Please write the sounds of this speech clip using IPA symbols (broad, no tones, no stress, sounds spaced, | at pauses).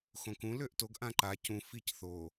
x õ k ũ l ø ʔ t o ɡ ʔ ã ǃ a c ũ f i c θ o